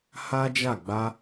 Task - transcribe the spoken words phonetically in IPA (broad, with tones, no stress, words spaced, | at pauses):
ha˦d͡ʒa˦˨ ɡ͡ba˧